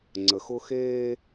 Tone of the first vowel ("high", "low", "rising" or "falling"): low